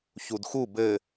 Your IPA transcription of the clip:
ç u d x u b ɘ

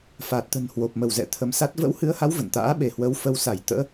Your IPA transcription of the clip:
f a˨˩ t̚ t̪ ə̤˨˩ n h w o˨˩ p̚ m ə˧˩ w z ɛ̰˧˨ t̪ʰ ə˨˦ m s a˦˥ t̚ v ə̰˧˥ w h ɨ˨˦ ə̯ h a˨˦ w v ə̰˧˨ n t̪ a̰ː˧˥ ɓ e˧˩ h w ə˨˦ w f ə˨˦ w s a˧˩ j t̪ ə̰ː˧˥

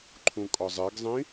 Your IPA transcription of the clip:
ǃʰ ũ kʼ ɒ zˤ e ɡ zˤ ĩ

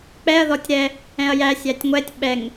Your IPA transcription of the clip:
k͡p ɛ ɐ̯ ð ɔ tʲ ɾ ɛ | ɛ̃ ɐ̯ j æ sʲ æ tʲ ŋʷ ɛ tʲ ɓ ɛ ŋ

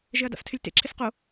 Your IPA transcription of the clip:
ʒ ɪ ɐ̯ d a̰ f tʰ ɪ lʲ t ḛ ǁʰ ɪ s q o

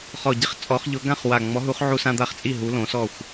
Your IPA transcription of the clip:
χ ɔ˨˩ ɟ ɪ˦ χ t͡sʼ ɔ˨˦ χ ʎ ʊ˨˦ ɡ ã˥˨ χ w a˨˩ ŋ͡m ɔ˨˦ ɦ u˨˦ χ ʕ u˦ s ã˦ d̪ a˥˨ χ t͡sʼ i˥˨ ɦ u˨˦ l õ˨˦ s ɔ˥˨ xʷ

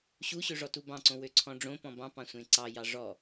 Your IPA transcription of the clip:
ɕ u ɕ ø ʐ ɔ t u b ɑ̃ ǀ õ w ø ǀʰ ɔ̃ ɖ͡ʐ õ p ɔ̃ b ɑ̃ p ɑ̃ sʷ ẽ ǀ ɑ j ɑ ʐ ɔ

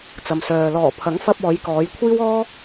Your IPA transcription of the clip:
t͡s ɐ˨ m s œː˨ l ɔː˨˩ pʰ ɐ˨˥ ŋ f ɐ˧ p̚ ɔː˨˧ j k ɔː˨˧ j kʷʰ iː˥ w ɔː˥

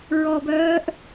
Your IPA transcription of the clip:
ɹ ɔ b œː ʔ

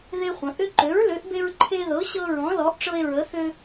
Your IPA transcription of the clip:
ð e˦ χʷ ə̃˩˧ ʔ ʏ˦ ǃ ø˨˥ ɹ l ø˨˥ ʔ b e˦ ɹ ǃʰ e˦ ð ɤ˨˥ ɕ ɤ˦ ɹ ɔ̃˨˥ l ɔ˨˥ ʔ ʈ͡ʂ ɤ˦ e̯ ɹ ə˨˥ θ ø˦

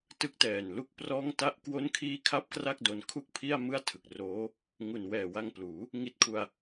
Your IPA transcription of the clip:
t ɯ˦˥ k̚ t ɛː˨˩ n l u˥˩ k̚ p r ɔː˥˩ ŋ t a˥˩ ʔ k w o˥˩ n kʰ iː˥˩ kʰ a˥˩ p̚ k r a˥˩ k̚ d o˧ n kʰ u˥˩ k̚ pʰ i˥˩ a̯ m ɯ˥˩ a̯ tʰ ɯ˨˩ k̚ r oː˦˥ | ŋ u˨˩ n w ɛː˨˩ w a˧ ŋ p l uː˩˦ | ŋ i˥˩ t̚ kʰ u˧ a̯

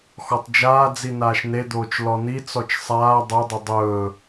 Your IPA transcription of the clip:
x ɔ tˤ d͡ʒ aː d͡z i n aː ʃ n e d̪ oː t͡ʃ l ɔ n i t͡s ɔ t͡ʃ sˤ aː dˤ o dˤ ʏ dˤ ɵː

